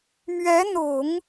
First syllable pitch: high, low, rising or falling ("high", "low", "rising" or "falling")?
rising